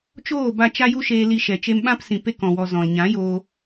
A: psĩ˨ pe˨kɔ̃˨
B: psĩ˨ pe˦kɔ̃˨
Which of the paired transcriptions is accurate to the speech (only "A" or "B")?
B